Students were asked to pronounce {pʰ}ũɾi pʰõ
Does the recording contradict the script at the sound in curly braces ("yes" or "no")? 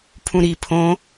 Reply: no